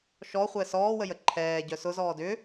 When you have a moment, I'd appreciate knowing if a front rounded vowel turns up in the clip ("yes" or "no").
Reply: yes